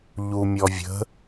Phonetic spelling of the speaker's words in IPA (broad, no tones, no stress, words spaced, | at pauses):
ʎumʲɔvʲə̤